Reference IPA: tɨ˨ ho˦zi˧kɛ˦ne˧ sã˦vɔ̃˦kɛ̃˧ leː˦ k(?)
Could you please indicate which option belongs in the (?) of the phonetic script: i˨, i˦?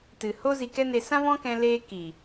i˨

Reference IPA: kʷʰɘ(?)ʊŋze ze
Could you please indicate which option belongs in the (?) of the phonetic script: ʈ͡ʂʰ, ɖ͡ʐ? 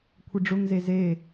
ɖ͡ʐ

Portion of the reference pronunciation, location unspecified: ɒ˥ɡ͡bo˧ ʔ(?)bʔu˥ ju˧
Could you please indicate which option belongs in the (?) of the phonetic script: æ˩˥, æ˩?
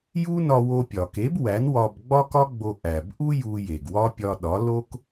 æ˩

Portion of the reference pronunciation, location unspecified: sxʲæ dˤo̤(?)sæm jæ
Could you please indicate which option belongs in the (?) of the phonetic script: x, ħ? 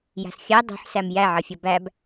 ħ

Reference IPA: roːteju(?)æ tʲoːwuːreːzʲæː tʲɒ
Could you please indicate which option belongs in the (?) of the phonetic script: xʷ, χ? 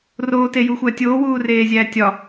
xʷ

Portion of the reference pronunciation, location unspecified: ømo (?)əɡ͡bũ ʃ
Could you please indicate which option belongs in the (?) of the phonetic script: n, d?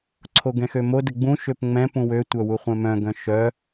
d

